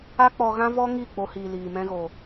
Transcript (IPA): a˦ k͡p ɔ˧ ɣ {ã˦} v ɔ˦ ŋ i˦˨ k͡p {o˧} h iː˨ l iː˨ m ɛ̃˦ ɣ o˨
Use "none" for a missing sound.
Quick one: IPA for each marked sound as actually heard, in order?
ã˦, o˧

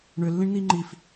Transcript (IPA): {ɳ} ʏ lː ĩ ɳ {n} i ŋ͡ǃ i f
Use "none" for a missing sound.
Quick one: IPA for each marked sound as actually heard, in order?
ɳ, n

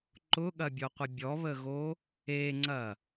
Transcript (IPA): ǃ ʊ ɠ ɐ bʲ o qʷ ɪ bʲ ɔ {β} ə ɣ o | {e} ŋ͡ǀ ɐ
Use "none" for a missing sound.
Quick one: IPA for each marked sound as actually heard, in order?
β, e

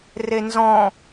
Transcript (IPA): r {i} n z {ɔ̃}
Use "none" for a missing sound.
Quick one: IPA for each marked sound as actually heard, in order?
e, ɔ̃

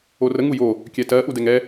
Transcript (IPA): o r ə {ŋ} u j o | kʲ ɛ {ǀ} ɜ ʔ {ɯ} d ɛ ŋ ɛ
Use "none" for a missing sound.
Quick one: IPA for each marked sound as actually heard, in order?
ŋ, t, u

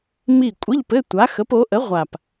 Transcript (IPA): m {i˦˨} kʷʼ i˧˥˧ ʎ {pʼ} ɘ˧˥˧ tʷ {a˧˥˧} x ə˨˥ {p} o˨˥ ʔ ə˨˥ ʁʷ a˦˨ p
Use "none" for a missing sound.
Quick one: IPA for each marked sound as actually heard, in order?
i˦˨, p, a˨˥, p

